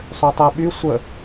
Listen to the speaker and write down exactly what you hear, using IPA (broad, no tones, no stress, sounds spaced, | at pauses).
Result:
sˤ ø tˤ e ɓ y sʷ ə